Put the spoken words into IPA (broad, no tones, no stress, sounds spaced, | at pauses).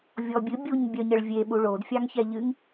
vʲ ɔ bʲ ɨ bʲ u ɲ bʲ œ ɲ ə ɭ vʲ e ɓ u ɭ o d fʲ ɑ ŋ ç ɛ ʎ ɨ ŋ